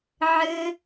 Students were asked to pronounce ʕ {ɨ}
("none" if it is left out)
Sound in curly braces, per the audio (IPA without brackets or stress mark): ɨ